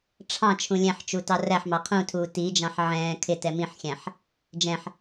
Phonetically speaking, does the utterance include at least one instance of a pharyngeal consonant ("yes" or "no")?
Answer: yes